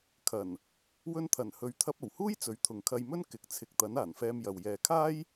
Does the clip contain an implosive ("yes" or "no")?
no